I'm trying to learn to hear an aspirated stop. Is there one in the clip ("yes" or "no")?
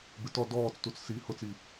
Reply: no